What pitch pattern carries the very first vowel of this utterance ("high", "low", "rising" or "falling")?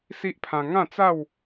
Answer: high